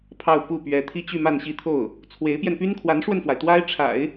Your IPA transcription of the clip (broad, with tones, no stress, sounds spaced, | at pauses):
pʰ ɑ˥˧ ʊ̯ p u˥˩ p ɥ ɛ˧˥ t̪ʰ i˥ t͡ɕ y˥˧ m a˥˧ n ɕ i˥˧ t̪ʰ o˥˩ ʊ̯ | t͡sʰ w e˧˥ ɪ̯ p j ɛ˧ n p y˥ n kʰ w a˧˥ n ʂ w ə˧ n f w a˩ ɪ̯ t̪ w a˥ ɪ̯ ʈ͡ʂʰ a̰˨˩˦ ɪ̯